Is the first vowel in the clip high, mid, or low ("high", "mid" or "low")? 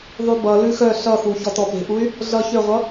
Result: high